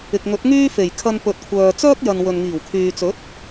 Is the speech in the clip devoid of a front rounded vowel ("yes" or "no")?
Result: no